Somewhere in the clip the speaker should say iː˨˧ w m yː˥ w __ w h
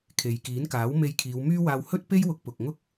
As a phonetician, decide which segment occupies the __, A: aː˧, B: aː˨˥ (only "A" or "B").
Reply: A